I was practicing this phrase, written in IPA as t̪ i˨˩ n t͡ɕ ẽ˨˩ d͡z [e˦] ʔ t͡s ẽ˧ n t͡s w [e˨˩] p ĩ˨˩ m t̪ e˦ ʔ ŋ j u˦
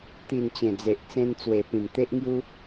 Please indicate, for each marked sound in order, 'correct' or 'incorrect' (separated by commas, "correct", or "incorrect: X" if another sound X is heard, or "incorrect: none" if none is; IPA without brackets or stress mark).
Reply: incorrect: e˨, correct